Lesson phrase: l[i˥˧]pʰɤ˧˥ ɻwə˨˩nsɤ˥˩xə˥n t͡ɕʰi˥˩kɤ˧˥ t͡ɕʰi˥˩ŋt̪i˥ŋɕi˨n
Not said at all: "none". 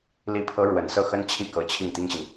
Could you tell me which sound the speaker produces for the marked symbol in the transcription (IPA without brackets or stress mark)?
i˧˥